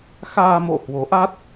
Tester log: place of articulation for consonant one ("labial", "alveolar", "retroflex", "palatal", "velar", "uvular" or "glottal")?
velar